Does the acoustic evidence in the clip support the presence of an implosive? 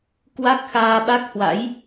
yes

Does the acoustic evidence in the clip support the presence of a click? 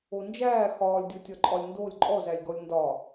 yes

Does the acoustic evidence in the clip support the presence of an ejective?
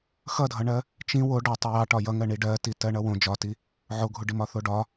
no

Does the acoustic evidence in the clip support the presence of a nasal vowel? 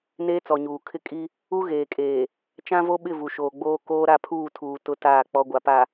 yes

